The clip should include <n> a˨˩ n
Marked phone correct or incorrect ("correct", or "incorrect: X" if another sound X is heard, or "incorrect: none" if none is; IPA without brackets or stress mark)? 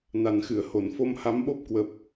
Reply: correct